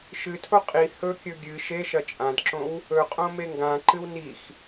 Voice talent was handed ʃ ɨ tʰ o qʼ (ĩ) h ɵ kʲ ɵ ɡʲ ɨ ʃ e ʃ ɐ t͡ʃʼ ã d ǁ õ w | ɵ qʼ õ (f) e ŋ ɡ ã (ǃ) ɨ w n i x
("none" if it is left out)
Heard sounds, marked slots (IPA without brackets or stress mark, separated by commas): i, m, ǃ